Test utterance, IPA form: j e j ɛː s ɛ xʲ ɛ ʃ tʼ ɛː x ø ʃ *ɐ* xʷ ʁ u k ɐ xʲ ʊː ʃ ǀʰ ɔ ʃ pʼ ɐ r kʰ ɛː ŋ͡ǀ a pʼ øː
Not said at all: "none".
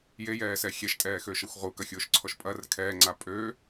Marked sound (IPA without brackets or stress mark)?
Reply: ɐ